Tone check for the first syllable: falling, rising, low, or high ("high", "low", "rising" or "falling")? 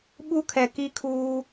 high